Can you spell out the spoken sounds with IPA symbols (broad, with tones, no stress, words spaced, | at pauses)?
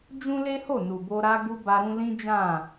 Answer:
d͡ʒũ˦le˦ho˦˨ nu˨bo˧ ɾa˧ ɡu˧ ba˧ɾũ˧ lĩ˦d͡ʒã˦˨